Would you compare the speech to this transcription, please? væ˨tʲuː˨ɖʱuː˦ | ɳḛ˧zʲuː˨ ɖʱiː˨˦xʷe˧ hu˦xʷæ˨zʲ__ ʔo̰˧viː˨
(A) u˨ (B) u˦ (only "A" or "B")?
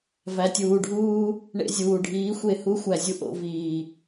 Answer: B